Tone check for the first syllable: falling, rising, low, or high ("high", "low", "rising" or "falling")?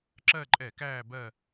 falling